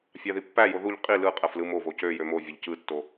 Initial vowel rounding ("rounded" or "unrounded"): unrounded